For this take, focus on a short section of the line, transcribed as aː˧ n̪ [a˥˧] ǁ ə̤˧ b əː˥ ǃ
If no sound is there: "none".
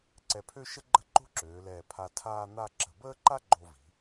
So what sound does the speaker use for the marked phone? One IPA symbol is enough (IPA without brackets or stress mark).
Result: a˥˧